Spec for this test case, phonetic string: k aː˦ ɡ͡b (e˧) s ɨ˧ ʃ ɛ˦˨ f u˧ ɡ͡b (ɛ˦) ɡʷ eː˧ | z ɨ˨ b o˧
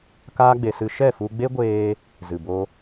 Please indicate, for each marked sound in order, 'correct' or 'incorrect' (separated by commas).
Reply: correct, incorrect